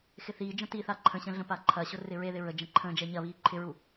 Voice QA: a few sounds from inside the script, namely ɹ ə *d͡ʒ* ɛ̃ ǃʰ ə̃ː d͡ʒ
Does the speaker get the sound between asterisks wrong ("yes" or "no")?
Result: no